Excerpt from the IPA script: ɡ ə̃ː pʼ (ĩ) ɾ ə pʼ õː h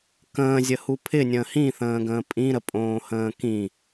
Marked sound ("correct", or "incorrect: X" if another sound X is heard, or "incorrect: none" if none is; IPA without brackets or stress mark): correct